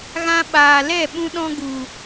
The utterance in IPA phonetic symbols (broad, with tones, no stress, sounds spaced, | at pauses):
ɣ ã˧ ɓ aː˨ l ɛ˦˨ ɓ ũ˧ ɗ ɔ̃˧ ɡ u˨